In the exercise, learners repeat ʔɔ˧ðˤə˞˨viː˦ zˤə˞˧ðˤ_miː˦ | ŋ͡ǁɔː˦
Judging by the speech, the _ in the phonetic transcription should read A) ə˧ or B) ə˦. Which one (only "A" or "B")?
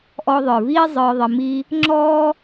A